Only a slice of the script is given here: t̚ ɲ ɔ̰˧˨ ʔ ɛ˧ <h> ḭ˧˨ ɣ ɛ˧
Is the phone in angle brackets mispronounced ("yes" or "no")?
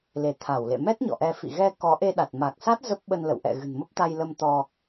yes